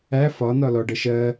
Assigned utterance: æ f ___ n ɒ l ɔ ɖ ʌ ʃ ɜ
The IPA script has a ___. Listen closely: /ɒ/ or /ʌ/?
ɒ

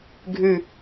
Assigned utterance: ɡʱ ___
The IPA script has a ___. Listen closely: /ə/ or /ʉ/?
ʉ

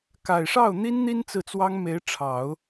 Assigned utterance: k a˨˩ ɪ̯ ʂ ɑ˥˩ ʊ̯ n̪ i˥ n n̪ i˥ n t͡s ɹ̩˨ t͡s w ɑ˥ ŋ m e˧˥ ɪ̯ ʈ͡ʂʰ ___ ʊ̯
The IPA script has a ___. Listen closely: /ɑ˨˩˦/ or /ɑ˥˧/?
ɑ˨˩˦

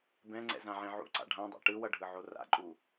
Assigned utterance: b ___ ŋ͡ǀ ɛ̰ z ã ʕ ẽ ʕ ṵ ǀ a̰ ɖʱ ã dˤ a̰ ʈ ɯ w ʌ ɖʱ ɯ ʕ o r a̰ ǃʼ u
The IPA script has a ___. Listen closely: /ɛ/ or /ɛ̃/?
ɛ̃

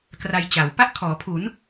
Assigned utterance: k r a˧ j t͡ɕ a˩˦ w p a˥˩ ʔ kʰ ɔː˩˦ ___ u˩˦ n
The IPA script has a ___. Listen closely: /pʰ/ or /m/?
pʰ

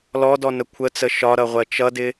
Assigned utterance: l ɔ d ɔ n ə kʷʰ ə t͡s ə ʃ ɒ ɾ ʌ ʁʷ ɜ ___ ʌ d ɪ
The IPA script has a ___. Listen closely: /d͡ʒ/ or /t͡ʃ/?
t͡ʃ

